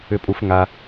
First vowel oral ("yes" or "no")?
yes